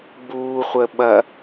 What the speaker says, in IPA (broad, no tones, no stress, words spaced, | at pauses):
ɡ͡buːχʷəɓɐ